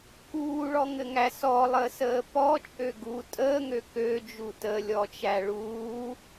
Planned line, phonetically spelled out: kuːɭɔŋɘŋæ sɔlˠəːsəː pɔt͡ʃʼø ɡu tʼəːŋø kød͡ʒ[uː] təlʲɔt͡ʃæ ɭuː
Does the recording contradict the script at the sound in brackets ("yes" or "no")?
yes